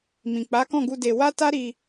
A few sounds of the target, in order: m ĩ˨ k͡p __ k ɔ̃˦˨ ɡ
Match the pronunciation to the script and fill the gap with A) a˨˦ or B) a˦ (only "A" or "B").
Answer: A